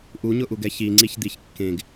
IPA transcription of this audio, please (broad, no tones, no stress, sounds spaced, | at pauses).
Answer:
ʔ u ɲ ʊ ʔ u ɡ ɛ ç i ŋ͡ǀ i ç d̪ i ç kː ẽ ɡ